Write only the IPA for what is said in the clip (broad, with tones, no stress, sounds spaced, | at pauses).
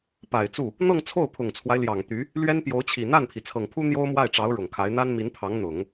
p a˨˩ ɪ̯ t͡s u˥˩ | n̪ ɤ˥˧ ŋ t͡sʰ o˥˩ ʊ̯ pʰ ʊ˨˩ ŋ t͡sʰ w a˦ ɪ̯ l j ɑ˨˩ ŋ t̪ y˧˥ | l ɥ ɛ˥ n p j o˧˥ ʊ̯ t͡ɕʰ i˨˩ n̪ a˥˩ n pʰ i˩ t͡sʰ ɤ˨˩ ŋ pʰ u˥ n̪ j o˥ ʊ̯ m w a˥˩ ɪ̯ ʈ͡ʂ ɑ˧˥ ʊ̯ ɻ ʊ˨˩ ŋ kʰ a˧˥ ɪ̯ n̪ a˥ n m i˧˥ n pʰ ɑ˧˥ ŋ n̪ ʊ˨˩˦ ŋ